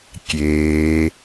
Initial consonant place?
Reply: velar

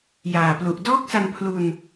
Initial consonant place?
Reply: palatal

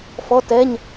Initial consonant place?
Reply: labial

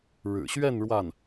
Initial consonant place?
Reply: retroflex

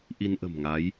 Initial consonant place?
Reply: glottal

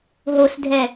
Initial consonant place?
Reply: glottal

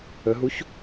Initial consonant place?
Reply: glottal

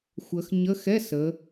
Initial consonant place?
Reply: velar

